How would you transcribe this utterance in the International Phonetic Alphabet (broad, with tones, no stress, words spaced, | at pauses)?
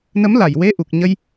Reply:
nə˧˥mla˨˩jwe˧˥ ʔu˨˩k̚ɲə˧j